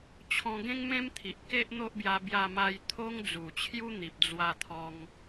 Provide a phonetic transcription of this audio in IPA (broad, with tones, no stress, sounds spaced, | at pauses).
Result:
t͡ɕʰ ɔ̃˧ ɡ ẽ˦ ŋ m ẽ˦ m t̪ʰ i˨ ʔ k e˦ ʔ n̪ o˦ ʔ b j a˧ b j a˧ m a˧ j t̪ʰ o˦ ŋ d͡z u˨˩ t͡ɕʰ j u˦ n̪ i˨ p̚ d͡z w a˧ t̪ʰ ɔ˧ ŋ